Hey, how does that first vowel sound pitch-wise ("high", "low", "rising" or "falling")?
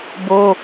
high